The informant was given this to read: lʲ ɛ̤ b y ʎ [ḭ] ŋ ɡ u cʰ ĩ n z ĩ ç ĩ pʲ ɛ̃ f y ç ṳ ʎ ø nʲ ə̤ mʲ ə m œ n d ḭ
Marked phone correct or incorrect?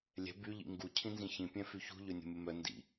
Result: correct